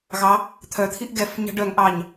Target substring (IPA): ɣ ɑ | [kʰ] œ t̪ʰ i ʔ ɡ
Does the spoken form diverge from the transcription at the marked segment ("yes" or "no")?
yes